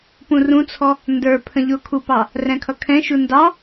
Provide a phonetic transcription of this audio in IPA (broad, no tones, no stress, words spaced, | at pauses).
pũrũt͡sʰɔ | ndə˞ pʰə̃ʎʊkʰupɑ | rɛ̃kʰʌkʰɛ̃ʃu ndɑ